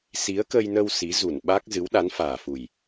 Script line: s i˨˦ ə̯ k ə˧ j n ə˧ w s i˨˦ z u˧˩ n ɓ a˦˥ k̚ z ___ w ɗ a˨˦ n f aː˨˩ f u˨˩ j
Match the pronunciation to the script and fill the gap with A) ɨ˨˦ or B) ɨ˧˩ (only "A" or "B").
A